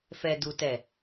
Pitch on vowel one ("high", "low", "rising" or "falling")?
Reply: low